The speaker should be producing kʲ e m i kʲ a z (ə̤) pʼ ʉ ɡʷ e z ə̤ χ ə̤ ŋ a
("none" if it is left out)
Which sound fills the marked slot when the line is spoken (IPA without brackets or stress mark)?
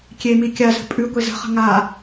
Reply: ə̤